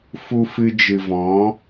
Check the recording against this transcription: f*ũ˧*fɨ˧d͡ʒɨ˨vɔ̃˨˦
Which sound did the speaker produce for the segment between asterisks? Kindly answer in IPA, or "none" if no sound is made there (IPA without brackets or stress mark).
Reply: u˧